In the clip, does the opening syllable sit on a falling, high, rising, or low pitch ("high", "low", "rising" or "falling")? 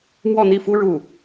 falling